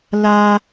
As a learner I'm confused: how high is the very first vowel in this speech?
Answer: low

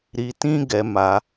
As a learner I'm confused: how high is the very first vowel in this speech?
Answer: high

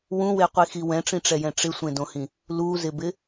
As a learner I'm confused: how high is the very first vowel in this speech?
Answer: high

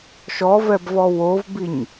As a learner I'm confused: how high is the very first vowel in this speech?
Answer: mid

